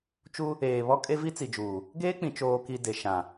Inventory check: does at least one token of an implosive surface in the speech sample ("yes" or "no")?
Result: no